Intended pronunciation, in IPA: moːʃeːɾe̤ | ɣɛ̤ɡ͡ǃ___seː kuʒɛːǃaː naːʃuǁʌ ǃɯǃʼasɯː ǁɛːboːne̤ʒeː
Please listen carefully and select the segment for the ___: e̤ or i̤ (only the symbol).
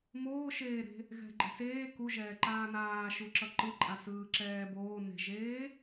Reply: e̤